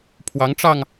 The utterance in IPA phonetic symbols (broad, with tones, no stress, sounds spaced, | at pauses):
pʰ w ɑ˧˥ ŋ ʈ͡ʂ ɑ˧ ŋ